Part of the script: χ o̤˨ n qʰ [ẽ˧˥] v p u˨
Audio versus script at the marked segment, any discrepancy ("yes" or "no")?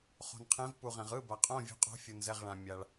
no